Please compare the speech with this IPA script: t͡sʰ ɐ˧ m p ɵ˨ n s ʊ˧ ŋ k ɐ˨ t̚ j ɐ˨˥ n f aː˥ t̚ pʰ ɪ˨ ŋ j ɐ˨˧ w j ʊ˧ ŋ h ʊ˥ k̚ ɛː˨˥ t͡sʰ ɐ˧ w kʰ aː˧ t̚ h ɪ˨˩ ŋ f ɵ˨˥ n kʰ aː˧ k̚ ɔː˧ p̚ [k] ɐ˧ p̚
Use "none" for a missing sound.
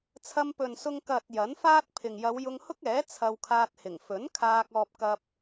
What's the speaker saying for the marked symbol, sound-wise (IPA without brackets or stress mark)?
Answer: k